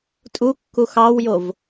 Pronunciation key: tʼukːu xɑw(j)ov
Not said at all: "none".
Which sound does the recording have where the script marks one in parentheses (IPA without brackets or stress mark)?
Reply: j